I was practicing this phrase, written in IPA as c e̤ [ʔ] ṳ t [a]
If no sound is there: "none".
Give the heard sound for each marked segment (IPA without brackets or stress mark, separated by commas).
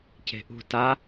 ʔ, a